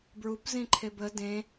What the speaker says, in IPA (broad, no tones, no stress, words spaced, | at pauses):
bɹupzĩǃʰeb ə dẽ